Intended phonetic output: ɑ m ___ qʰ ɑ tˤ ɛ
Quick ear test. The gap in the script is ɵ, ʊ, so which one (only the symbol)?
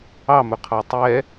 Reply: ɵ